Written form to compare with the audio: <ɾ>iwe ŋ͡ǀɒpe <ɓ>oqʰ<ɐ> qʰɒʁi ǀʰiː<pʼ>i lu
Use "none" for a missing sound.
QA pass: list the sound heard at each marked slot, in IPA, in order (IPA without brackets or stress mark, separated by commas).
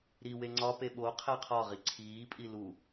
ɾ, ɓ, æ, pʼ